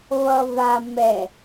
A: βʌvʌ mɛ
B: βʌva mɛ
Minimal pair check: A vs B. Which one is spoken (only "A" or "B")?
B